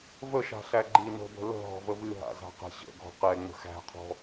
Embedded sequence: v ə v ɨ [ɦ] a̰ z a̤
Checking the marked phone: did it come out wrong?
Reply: no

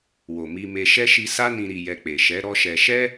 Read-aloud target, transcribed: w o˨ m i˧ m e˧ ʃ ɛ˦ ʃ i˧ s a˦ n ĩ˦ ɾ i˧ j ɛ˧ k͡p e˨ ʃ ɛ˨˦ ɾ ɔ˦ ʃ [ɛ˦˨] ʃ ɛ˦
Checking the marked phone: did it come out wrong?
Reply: yes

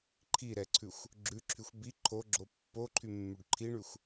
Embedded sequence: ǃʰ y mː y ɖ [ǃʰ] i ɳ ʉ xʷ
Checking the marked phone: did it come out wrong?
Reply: no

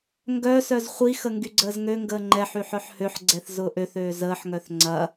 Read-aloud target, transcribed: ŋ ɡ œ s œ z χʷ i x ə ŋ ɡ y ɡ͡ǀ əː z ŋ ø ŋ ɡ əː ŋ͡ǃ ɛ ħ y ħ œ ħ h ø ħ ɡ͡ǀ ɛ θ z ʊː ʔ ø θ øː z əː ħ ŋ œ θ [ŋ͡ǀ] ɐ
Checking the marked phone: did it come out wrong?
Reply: no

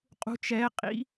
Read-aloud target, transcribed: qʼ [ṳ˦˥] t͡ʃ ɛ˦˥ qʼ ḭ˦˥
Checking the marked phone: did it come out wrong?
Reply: no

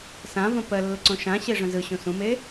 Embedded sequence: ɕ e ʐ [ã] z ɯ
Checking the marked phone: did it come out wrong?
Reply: yes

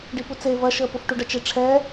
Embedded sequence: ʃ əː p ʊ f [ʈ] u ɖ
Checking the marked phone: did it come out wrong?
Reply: no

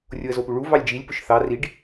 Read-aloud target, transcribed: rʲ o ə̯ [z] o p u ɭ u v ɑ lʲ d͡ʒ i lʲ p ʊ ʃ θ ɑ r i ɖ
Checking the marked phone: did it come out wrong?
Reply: no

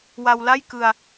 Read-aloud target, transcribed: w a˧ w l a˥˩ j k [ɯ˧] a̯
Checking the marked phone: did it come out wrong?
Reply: no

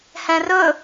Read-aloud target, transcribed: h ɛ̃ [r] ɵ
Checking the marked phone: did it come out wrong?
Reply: no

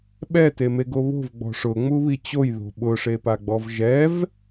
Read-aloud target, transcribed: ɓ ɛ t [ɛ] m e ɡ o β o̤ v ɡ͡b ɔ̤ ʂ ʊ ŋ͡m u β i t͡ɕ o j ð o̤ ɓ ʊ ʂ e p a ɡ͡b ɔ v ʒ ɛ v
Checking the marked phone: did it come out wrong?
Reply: yes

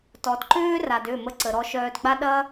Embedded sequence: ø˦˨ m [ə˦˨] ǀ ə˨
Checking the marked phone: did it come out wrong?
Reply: yes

